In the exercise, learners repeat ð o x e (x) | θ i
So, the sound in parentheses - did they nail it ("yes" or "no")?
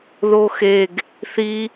no